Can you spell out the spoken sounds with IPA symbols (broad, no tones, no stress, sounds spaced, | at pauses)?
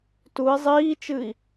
t u i̯ zˤ iː t͡ʃ ɨ i̯